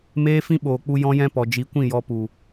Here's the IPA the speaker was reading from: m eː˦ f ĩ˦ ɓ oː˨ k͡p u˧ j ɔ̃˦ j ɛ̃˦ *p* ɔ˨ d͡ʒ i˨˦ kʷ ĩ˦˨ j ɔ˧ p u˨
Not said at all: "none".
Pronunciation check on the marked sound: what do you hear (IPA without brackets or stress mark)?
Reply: p